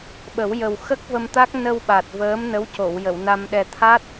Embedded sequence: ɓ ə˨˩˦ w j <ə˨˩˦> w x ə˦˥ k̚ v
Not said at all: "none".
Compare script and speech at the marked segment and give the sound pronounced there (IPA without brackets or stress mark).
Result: ə˨˩